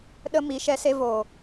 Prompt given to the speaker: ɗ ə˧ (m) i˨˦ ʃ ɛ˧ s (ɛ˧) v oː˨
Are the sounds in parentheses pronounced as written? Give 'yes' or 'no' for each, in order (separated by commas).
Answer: yes, no